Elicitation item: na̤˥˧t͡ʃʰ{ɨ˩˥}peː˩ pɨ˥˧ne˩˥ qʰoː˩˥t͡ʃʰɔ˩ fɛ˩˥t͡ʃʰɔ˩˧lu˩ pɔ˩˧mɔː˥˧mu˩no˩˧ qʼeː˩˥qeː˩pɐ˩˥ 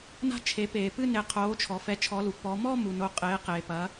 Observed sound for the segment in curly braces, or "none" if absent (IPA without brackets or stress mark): e˩˥